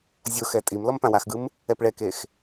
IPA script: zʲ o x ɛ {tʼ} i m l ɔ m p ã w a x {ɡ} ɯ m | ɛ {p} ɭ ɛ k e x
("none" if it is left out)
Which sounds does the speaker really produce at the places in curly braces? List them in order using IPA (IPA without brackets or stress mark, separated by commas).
tʼ, ɡ, p